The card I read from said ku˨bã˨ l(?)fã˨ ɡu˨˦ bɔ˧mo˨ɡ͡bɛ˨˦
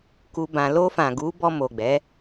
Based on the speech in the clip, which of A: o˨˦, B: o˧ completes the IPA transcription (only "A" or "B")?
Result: B